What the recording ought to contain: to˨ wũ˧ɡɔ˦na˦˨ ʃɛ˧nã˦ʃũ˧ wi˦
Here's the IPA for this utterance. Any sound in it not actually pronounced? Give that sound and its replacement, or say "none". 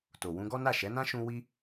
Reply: ɛ˧ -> ɛ˨˦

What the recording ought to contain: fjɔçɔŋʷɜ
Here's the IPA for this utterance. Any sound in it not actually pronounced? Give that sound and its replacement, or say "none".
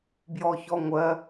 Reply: f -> b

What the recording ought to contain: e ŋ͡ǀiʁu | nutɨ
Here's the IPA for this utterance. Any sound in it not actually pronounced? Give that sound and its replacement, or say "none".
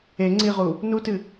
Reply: none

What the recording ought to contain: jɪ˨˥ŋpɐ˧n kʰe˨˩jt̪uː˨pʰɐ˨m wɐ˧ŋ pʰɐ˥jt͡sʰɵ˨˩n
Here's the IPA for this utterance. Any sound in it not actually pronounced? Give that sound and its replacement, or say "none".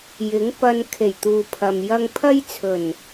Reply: w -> j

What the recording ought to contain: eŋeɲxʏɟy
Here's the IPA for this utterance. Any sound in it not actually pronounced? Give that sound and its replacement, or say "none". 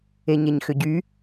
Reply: ŋ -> ɲ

